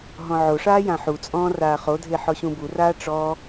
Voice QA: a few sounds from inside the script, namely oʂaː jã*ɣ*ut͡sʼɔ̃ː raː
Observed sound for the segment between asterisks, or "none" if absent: ħ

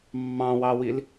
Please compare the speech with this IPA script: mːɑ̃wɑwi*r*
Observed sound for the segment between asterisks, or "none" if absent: l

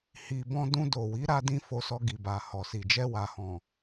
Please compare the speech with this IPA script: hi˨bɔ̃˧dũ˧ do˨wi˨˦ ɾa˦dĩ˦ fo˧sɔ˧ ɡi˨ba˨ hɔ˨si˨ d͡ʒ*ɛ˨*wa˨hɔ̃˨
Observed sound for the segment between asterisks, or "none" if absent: ɛ˧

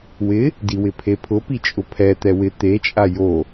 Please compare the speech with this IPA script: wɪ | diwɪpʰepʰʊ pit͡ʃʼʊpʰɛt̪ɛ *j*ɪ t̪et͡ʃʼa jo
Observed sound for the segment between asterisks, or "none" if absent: w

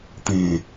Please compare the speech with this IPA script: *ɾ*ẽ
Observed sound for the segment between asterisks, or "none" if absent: t̪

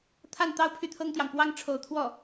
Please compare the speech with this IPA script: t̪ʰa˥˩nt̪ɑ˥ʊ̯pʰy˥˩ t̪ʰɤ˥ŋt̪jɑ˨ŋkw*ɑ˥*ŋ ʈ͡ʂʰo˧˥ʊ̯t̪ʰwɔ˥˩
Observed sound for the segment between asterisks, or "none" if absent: ɑ˥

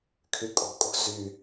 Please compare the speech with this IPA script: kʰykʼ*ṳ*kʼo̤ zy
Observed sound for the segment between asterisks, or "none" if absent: o̤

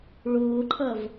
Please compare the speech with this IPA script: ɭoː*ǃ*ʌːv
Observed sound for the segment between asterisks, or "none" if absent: ǃʰ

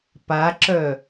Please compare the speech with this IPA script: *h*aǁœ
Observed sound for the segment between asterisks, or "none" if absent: p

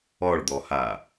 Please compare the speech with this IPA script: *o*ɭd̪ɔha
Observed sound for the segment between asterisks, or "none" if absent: ɔ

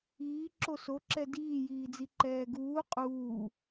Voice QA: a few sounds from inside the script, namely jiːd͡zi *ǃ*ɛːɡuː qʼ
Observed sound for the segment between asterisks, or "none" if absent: ǃ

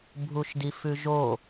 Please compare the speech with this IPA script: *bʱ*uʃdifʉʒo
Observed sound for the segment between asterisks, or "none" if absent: bʱ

